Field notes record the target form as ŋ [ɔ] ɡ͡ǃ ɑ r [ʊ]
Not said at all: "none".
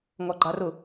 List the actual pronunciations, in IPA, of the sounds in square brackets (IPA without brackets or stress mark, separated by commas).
ɔ, ʊ